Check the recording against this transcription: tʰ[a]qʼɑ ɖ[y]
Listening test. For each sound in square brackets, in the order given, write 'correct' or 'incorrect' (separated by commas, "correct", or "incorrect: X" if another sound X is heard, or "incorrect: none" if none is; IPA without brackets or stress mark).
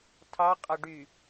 incorrect: ɑ, correct